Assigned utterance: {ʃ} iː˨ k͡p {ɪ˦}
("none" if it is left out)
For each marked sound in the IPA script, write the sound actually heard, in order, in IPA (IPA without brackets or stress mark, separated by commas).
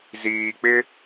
z, ɪ˦